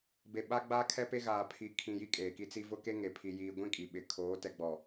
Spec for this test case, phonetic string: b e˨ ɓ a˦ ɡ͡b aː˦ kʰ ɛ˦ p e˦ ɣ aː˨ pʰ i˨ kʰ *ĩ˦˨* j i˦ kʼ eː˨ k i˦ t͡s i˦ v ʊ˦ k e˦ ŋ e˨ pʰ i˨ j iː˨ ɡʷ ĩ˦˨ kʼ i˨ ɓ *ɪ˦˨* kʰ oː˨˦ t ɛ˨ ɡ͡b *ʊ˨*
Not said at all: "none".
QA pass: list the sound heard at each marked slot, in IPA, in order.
ĩ˨, ɪ˨, ɔ˨

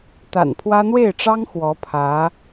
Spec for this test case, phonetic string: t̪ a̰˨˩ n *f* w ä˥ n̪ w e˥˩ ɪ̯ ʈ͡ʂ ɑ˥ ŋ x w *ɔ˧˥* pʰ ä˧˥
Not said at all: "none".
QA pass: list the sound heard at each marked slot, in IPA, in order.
pʰ, ɔ˧˥

